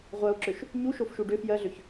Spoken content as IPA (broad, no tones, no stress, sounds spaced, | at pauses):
ʁʷ ɜ o̯ ǁ ø ʃ | ɲ u ʃ o f ʃ u ɖ ø f j ɜ ɮ ø ç